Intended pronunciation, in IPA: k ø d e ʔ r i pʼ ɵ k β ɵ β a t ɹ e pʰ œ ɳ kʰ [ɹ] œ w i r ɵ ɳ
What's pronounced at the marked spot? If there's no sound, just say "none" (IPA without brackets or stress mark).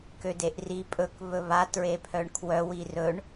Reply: w